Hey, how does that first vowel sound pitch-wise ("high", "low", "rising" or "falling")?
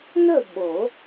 falling